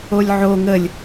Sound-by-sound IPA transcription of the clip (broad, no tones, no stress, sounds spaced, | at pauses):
o lʲ ʕ o ŋ ə lʲ